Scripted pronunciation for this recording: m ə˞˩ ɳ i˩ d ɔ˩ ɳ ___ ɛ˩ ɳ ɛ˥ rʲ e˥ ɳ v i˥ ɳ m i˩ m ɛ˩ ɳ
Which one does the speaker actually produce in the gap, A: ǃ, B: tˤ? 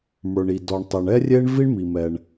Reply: B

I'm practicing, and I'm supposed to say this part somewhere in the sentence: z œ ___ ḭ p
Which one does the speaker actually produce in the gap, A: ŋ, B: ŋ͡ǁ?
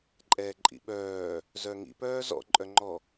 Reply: A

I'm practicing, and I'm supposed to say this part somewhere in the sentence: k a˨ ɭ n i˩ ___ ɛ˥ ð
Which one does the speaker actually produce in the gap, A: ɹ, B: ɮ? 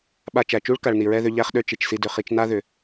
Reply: A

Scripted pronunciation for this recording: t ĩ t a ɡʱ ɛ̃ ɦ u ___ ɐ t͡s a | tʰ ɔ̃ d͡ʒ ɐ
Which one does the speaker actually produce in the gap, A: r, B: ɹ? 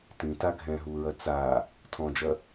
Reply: B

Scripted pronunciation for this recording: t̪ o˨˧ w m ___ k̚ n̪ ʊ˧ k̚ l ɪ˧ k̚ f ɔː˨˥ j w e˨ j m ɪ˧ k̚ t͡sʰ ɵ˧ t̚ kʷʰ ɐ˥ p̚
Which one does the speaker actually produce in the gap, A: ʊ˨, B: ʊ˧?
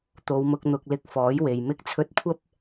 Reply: B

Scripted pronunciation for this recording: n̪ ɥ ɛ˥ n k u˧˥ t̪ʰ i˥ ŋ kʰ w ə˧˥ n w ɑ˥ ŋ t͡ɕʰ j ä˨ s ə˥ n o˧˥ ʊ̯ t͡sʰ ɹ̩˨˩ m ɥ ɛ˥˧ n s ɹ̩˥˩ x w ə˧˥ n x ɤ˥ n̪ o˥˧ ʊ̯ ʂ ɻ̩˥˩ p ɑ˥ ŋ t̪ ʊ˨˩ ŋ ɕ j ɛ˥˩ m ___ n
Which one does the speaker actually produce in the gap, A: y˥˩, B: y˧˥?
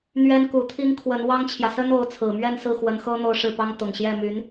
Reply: B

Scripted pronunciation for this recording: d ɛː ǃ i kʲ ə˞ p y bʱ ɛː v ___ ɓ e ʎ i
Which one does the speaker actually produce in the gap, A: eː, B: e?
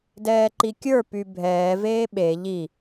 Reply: A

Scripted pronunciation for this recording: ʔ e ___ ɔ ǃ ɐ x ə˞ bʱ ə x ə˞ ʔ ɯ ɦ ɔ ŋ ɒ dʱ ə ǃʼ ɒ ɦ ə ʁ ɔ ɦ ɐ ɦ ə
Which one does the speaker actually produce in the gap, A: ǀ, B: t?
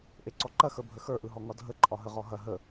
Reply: A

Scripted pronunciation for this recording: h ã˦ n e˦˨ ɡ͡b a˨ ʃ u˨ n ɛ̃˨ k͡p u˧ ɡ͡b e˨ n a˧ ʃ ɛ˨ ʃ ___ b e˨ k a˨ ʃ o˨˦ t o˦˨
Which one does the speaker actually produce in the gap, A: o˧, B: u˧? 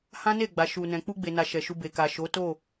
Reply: B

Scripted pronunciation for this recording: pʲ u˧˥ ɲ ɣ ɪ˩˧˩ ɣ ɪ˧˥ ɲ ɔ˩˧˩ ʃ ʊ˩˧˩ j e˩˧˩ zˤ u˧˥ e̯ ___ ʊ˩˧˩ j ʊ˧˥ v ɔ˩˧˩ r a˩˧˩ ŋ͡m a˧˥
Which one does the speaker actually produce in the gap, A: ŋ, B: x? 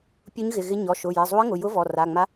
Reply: A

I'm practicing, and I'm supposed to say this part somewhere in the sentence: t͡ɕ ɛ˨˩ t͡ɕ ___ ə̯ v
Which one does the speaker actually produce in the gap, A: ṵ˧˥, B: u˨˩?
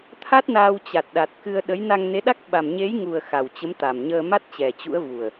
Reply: A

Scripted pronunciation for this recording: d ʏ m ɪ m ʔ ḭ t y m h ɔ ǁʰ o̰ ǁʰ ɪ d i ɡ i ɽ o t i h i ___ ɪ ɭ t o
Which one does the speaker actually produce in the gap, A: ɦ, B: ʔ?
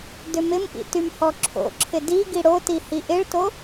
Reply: B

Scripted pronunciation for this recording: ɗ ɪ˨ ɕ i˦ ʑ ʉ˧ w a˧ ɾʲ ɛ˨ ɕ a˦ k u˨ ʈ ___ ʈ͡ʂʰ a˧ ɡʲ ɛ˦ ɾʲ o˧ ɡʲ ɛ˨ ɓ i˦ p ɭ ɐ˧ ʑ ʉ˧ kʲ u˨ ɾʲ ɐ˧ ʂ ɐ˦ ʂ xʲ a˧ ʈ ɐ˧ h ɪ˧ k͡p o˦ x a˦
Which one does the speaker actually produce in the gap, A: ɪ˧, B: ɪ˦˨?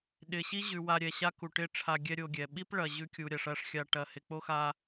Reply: B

